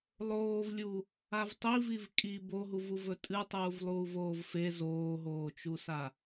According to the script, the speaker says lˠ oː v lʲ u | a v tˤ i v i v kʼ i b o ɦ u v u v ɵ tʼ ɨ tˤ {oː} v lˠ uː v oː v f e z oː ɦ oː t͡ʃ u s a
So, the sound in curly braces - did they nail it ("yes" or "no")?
no